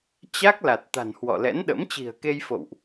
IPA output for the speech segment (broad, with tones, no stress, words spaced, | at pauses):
t͡ɕa˦˥k̚la˨˩t̚ t̪a̤˨˩n hwɔ̰˧˨lɛ̰˧˥nɗə̰˧˥m t͡ɕi̤˨˩ə̯ke˧jfo̰˧˨wʔ